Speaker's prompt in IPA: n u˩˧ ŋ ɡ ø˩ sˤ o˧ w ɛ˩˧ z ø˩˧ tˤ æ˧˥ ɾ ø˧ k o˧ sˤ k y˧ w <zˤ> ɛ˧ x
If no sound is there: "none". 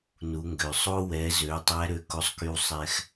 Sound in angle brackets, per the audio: sˤ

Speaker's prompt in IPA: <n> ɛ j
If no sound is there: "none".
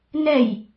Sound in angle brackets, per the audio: n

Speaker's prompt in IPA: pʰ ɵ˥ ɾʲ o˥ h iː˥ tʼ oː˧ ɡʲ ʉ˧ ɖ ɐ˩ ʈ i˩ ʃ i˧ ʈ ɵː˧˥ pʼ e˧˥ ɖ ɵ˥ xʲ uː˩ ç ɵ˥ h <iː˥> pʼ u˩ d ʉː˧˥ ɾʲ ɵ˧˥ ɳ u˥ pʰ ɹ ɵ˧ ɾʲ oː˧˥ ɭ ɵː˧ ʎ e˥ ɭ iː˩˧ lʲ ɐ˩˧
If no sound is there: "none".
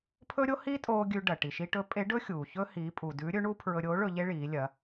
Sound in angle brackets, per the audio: iː˩˧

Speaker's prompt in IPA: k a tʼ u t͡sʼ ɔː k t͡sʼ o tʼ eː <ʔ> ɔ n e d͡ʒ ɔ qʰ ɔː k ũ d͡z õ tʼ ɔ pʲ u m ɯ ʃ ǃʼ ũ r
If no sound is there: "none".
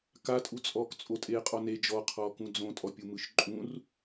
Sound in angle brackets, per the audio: qʼ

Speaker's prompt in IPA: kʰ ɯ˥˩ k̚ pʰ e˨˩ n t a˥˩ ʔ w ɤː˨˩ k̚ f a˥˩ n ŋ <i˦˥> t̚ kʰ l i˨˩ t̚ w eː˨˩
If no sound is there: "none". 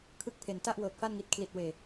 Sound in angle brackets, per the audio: i˨˩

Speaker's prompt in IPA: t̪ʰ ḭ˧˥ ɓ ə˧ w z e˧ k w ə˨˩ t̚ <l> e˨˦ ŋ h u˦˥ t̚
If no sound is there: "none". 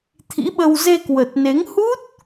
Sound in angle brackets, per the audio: n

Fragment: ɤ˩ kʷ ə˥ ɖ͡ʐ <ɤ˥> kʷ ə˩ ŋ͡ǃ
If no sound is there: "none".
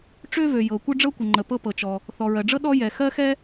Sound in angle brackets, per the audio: ɤ˥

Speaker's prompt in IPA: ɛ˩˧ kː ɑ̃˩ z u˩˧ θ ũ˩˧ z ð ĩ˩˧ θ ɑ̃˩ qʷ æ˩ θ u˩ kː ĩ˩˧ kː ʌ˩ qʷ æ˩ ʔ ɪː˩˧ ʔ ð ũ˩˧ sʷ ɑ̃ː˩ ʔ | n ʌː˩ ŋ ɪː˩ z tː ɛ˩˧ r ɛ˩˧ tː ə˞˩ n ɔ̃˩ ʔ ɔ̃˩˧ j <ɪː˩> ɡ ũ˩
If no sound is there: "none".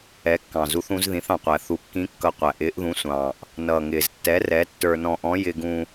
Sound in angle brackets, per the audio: ɪ˩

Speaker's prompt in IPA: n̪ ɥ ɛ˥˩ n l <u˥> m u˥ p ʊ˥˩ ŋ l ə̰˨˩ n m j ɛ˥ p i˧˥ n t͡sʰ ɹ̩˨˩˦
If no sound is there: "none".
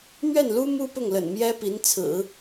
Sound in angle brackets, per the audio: u˥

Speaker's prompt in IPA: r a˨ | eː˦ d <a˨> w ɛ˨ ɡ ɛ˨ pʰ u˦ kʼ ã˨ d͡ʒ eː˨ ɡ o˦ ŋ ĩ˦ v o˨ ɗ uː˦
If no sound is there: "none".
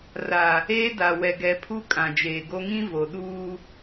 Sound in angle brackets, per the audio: a˨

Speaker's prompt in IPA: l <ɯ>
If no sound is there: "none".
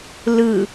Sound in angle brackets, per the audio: ɯ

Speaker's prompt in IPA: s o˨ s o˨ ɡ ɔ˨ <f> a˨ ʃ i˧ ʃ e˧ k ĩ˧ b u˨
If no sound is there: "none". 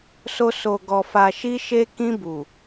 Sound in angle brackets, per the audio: f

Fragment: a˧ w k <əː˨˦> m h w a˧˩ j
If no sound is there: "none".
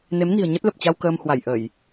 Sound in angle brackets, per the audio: əː˧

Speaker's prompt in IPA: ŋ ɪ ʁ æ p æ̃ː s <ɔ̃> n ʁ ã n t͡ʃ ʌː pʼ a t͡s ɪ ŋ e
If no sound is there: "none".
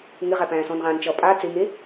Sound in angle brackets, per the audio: ɔ̃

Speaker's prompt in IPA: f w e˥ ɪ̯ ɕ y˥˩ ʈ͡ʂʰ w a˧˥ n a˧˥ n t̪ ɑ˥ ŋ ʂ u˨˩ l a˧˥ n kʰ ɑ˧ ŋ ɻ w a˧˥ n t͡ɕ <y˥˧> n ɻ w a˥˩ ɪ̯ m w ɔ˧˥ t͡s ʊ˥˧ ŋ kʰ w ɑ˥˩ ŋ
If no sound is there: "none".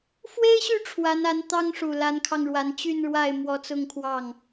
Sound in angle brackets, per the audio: y˥˧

